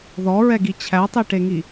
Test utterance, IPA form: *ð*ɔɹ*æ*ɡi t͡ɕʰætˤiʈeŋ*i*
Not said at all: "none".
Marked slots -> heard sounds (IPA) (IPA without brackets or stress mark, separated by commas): ð, ɛ, i